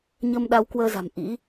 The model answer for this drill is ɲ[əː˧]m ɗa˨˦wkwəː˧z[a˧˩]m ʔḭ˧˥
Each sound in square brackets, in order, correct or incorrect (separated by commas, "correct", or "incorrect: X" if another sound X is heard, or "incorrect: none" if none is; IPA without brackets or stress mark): correct, incorrect: a̤˨˩